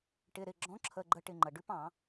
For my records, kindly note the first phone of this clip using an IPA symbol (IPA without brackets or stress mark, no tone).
ʈ